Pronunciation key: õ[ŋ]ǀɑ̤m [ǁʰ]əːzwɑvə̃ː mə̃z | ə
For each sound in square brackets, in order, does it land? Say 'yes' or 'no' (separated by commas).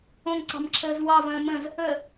yes, yes